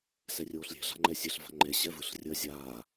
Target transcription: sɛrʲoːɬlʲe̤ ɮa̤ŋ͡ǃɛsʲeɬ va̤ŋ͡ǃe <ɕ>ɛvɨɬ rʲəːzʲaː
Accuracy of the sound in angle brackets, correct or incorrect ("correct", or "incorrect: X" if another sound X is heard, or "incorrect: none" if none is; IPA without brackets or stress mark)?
correct